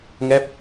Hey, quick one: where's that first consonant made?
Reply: velum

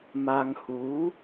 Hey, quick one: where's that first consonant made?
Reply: lips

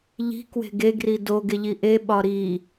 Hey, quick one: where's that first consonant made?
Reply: palate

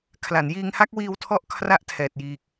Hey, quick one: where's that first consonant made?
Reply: velum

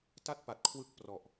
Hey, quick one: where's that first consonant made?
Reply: tongue tip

